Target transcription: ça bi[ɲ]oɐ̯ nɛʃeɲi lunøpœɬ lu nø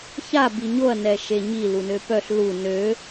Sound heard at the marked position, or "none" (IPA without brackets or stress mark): ɲ